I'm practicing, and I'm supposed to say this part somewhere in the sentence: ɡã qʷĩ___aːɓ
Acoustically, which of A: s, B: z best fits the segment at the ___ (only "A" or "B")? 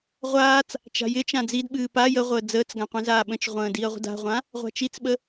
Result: B